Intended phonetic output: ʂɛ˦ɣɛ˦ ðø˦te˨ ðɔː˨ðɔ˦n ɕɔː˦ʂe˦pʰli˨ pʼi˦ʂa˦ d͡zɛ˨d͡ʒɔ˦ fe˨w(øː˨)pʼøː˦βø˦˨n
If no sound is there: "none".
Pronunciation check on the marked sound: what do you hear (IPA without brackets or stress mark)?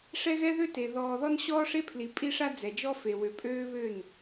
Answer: ø˨